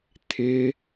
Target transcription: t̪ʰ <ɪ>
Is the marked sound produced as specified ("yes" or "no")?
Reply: yes